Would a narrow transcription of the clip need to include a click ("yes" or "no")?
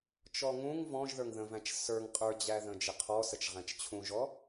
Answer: no